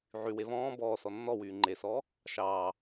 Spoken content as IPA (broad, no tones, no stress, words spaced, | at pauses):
ʕywe βɔ̃ː bɔːsɔ nːɔwyː ŋ͡ǃesɔː | ʃɑː